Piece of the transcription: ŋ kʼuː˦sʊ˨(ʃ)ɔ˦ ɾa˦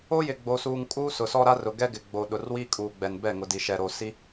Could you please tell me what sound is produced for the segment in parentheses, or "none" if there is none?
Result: s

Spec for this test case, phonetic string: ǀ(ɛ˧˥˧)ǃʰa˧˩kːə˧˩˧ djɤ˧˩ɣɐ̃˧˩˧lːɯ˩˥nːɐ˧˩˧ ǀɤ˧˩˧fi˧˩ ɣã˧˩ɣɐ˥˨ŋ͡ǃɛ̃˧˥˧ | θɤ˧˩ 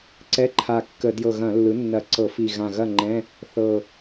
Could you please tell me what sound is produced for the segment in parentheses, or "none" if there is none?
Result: ɛ˧˥˧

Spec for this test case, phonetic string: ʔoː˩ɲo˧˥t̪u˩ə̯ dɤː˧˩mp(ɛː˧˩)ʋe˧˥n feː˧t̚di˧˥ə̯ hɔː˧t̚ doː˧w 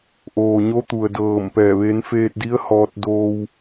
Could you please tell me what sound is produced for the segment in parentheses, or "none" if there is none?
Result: ɛː˧˩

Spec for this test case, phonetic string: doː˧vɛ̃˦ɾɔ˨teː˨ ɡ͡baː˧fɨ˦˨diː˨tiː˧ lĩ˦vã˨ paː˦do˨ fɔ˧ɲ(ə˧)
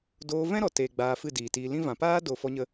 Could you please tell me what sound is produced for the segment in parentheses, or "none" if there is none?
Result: ə˧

